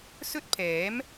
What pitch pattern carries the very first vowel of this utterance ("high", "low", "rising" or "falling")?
high